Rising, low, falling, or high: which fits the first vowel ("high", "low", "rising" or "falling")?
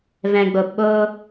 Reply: low